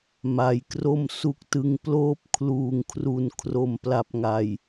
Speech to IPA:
m a˩˦ j k r o˥˩ m s u˦˥ k̚ t ɯ˦˥ ŋ p l oː˥˩ p̚ kʰ l uː˨˩ ŋ kʰ r u˨˩ n kʰ r o˨˩ m p l a˨˩ p̚ ŋ a˨˩ j

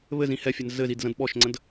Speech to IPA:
β ɘ z ĩ h ɛ fʲ ɛ n z ɘ z i d z ə̃ d ɓ ɔ ʃ ŋ͡ǀ ə̃ d

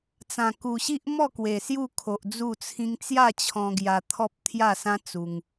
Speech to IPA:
t͡s ã˨˩ k u˨˩ ɕ i˦ ʔ m ɔ˥˧ k w e˨˩ s j u˥˧ kʰ o˨ ʔ d͡z u˥˧ t͡sʰ ĩ˦ ŋ t͡s j a˥˧ t͡ɕʰ ɔ̃˧ ɡ j a˧ t̪ʰ ɔ˦ p̚ t̪ʰ j a˥˧ s ã˦ t͡s u˧ ŋ

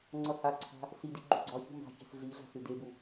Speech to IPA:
ŋ͡ǀ ʌ h a ǀʰ a̤ | s i d i ɡ͡ǃ ṳ ɡ͡ǀ ɒ ç ṳ m ɑ̤ ç ɛ̤ s ɮ i ɮ a̤ s ɨ d e b u

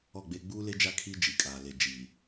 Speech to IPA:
ɔ˦˨ ɡ͡b eː˦ ɡ͡b uː˦ l e˦ d͡ʒ a˦˨ kʰ iː˦ d͡ʒ i˨ kʼ aː˨ l e˨ d͡ʒ iː˨

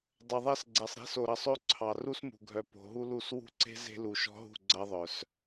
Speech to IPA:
dˤ ə˨ ðˤ ɛ˦ s ɡ͡ǀ ɛ˨ sˤ ɾ e̤˦ s o˨ ɾ ʌ˨ sˤ ø˦ ǀʰ ɑ˨ r u˦ s m ṳ˨ ɡʱ œ˨ p o̤˨ ɦ u˦ l u˦˨ s w ṳ˦ ǀ e̤˦ z e̤˦ l u˨ ʃ ɔ̤˦ ɦ ṳ˦˨ ɡ͡ǀ ʌ˦ ðˤ œ˨ s

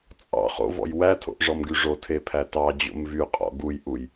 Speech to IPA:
t͡sʼ ɑ̰ χ o̰ v ɔ̰ j w æ tʰ o̰ ʔ ʐ ɔ m ɡ y ʐ o tʰ e pʰ æ t ɑ d͡ʑ o̰ m v y qʼ ɔ̰ ɡ u j ʔ u j

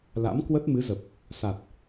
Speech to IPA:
l a̰˧˥ m k w ə˦˥ t̚ m ɨ˨˦ z ə˨˩ p̚ | s a˨˩ t̚

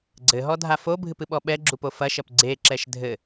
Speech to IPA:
ɡ͡ǀ ɘ ɦ ɔ dʱ a f o bʱ ɨ p ɨ ɓ ɔ ɓ ɛ ɡ͡ǁ u p o f ɐ ʃ ɐ p ɡ͡ǀ e ǁ ɛ ʃ dʱ ɘ

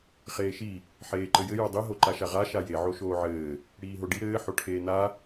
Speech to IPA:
χ eː ʃ i | ħ eː ǃ ɘ j ɘ j o dˤ i ɦ o ǃ a ʃ a ʁ a ʃ a j e ʕ o ʃ oː ʕ ɘː | ɽ iː ɦ o ɖ i ɾ ɘː ħ o ʈʰ eː n a

